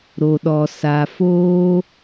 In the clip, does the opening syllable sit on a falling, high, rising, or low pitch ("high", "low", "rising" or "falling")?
low